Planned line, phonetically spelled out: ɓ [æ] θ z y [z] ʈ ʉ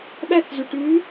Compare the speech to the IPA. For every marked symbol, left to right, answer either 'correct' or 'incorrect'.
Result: correct, incorrect: none

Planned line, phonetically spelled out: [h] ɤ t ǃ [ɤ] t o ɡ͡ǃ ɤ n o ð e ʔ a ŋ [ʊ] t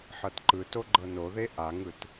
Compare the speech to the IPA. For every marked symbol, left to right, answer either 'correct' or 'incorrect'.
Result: incorrect: ħ, incorrect: ɯ, incorrect: ɯ

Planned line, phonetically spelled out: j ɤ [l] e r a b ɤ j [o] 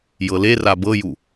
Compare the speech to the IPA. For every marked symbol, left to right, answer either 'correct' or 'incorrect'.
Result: correct, incorrect: u

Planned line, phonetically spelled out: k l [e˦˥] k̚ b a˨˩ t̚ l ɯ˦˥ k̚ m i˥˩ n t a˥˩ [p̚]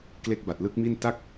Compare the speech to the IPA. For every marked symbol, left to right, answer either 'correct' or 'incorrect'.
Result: correct, incorrect: k̚

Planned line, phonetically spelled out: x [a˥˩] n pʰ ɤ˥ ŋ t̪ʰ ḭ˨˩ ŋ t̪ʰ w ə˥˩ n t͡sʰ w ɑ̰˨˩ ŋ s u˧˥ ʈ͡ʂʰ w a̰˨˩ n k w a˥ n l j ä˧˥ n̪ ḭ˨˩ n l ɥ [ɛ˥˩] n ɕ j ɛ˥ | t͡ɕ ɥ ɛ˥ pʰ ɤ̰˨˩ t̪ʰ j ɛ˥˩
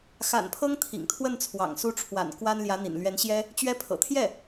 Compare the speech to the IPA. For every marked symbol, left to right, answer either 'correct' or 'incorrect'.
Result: incorrect: a̰˨˩, incorrect: ɛ˧˥

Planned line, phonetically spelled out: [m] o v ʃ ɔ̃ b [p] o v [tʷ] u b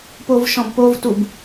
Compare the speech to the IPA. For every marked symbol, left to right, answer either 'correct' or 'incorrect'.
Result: incorrect: p, correct, incorrect: t

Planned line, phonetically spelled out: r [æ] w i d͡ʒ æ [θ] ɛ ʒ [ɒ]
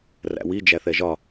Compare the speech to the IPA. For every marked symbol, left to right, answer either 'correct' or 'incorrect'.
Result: incorrect: æ̰, correct, correct

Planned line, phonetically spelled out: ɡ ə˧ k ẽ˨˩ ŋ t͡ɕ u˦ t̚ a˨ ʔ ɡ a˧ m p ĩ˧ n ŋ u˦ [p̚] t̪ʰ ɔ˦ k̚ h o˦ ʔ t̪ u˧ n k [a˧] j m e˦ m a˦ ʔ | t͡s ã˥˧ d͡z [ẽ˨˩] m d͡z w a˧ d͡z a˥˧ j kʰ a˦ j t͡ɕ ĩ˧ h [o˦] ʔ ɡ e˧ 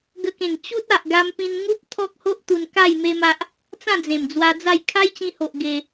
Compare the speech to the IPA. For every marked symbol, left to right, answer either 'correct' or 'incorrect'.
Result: correct, incorrect: a˥˧, correct, incorrect: o˨

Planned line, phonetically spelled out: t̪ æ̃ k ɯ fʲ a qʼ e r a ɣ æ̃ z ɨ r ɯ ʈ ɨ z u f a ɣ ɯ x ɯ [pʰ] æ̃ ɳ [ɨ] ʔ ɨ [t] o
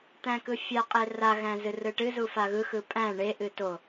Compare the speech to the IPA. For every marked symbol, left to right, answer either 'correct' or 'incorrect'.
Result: incorrect: pʼ, incorrect: e, correct

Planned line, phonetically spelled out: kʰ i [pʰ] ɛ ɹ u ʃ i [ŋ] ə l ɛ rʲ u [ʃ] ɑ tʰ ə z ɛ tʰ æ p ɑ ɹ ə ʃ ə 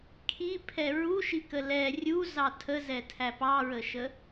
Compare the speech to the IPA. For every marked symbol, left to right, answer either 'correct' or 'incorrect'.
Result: correct, incorrect: k, incorrect: z

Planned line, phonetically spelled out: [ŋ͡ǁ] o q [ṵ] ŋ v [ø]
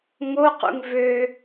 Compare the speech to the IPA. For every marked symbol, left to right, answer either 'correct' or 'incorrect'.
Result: incorrect: ŋ, correct, correct

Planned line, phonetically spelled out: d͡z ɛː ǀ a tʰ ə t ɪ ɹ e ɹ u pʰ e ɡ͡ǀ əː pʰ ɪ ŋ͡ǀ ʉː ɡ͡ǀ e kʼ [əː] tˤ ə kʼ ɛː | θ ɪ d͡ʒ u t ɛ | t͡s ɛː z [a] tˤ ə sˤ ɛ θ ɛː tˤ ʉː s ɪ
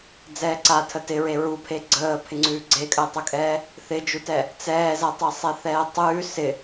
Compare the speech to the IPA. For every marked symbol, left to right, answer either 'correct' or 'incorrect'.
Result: correct, correct

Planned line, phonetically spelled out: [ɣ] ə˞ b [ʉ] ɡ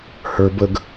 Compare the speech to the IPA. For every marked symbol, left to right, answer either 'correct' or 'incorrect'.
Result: incorrect: h, incorrect: ə

